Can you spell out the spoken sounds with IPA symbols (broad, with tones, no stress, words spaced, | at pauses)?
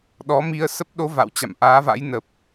ɗɔ˨˦mi˧ə̯sə˦˥p̚ ɗo˨˦ va̰˧˨wt͡ɕa̰˧˨mʔaː˨˦va̰˧˥j nə˨˩p̚